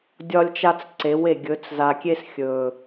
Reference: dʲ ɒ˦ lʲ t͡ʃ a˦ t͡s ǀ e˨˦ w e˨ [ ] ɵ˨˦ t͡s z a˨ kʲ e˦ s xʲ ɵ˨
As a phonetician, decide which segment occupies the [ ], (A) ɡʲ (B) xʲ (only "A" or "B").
A